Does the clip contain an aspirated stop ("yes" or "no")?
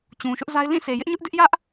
no